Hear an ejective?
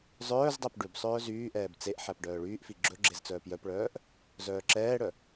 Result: no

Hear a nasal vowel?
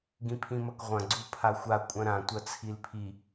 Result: yes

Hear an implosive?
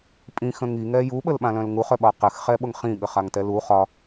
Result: yes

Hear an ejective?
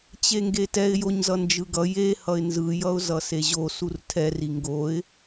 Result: no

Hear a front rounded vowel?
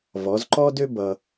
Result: yes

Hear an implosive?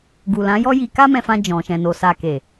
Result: no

